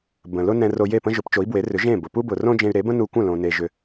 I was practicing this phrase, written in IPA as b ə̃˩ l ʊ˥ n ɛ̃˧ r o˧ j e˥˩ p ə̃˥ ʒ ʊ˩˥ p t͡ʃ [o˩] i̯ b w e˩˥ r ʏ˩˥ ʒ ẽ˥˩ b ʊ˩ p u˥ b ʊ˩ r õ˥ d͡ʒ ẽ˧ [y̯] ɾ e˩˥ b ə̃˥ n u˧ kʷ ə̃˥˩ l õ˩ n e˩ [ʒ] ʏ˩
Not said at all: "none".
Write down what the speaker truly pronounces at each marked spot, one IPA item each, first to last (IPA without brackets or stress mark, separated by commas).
o˩˥, y̯, ʒ